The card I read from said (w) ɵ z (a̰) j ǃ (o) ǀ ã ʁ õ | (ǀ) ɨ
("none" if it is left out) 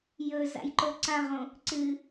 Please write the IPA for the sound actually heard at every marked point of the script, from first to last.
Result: j, a̰, o, ǀ

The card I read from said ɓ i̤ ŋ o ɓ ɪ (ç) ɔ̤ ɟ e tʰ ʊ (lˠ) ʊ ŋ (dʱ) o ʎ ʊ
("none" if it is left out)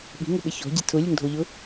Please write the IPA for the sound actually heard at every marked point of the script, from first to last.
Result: ç, lʲ, dʱ

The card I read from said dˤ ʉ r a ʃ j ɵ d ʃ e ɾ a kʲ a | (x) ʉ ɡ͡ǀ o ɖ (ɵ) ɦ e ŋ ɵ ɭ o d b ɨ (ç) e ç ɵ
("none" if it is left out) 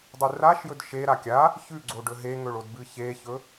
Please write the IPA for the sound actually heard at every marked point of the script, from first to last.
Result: ç, ɵ, ç

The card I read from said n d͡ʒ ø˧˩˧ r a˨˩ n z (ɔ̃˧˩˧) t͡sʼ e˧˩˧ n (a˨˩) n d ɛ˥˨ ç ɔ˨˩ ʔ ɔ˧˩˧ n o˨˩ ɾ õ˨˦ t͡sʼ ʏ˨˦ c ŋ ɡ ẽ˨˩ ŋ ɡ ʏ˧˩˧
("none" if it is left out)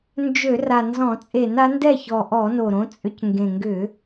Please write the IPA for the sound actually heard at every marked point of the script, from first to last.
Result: ɔ̃˧˩˧, a˨˦

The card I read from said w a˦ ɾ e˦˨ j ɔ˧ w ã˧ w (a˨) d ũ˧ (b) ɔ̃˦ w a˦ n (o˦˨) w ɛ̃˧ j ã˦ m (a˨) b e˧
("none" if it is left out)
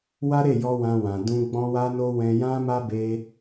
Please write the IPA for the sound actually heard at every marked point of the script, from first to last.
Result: ã˨, ɡ͡b, o˦, a˦

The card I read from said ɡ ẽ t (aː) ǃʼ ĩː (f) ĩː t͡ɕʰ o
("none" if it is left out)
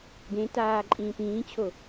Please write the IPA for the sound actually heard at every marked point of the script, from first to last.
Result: aː, p

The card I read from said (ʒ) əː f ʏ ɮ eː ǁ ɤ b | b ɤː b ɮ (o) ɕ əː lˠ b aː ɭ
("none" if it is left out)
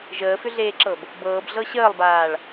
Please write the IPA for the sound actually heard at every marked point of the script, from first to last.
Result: ʒ, ɤ

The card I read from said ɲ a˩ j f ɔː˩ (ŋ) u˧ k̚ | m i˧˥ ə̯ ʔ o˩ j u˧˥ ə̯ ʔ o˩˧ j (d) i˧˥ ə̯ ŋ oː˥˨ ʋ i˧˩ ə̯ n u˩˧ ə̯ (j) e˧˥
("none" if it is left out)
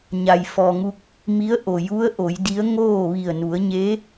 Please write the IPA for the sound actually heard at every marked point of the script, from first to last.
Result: ŋ, d, ɲ

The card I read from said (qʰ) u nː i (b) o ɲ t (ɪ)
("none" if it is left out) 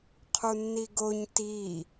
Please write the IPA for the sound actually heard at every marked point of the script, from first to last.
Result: qʰ, ɡ, i

